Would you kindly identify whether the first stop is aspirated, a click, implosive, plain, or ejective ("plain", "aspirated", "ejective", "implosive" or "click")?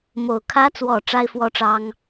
aspirated